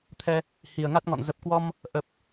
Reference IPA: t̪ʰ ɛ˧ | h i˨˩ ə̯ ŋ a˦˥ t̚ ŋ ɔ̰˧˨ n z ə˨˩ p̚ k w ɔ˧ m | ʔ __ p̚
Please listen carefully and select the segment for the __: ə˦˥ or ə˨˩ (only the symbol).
ə˨˩